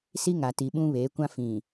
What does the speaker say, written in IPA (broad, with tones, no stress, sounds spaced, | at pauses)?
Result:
s i˦ ŋ a˨ t i˨ ɓ ũ˦ β eː˨˦ kʷ ã˦ f ĩ˨